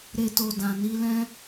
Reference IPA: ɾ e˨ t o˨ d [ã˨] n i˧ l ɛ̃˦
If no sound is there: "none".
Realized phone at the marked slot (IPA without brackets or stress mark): ã˨